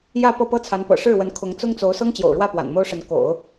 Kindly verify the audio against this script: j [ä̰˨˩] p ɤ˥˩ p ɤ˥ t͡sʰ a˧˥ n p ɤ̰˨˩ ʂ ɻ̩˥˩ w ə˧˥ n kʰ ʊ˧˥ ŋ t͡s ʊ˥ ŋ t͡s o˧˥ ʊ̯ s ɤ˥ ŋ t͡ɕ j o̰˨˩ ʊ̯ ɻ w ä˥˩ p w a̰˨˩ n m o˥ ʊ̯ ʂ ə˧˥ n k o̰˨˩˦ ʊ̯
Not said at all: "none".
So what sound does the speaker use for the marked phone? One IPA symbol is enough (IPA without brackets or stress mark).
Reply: ä˥˧